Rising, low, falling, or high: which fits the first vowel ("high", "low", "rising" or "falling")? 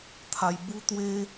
high